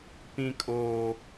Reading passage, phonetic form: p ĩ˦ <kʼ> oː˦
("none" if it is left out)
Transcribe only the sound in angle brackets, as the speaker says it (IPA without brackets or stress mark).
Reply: kʼ